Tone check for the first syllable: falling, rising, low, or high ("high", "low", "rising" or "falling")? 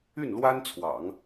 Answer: falling